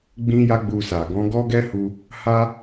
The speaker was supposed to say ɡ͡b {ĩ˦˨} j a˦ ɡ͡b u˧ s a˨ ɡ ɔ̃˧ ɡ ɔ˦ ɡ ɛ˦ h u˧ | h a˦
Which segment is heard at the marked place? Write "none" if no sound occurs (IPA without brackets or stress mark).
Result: ĩ˦